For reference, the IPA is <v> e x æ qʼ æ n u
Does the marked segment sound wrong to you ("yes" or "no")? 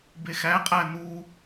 yes